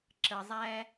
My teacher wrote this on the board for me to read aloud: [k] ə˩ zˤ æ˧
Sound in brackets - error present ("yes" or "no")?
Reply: yes